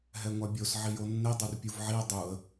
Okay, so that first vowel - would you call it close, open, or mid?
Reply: mid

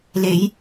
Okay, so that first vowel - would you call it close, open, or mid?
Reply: mid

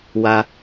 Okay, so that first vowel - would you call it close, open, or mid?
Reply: open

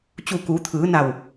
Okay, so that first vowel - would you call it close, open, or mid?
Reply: close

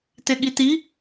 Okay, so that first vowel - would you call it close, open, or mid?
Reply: mid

